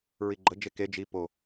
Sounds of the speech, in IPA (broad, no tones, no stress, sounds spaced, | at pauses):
ɹ i ɡ͡ǃ ə d͡ʒ e k e d͡ʒ i p o